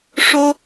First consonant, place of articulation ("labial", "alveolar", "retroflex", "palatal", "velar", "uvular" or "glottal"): retroflex